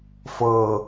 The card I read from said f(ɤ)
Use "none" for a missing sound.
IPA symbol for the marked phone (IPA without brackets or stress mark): ɤ